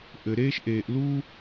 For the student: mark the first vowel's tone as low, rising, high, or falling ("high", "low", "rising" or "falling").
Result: low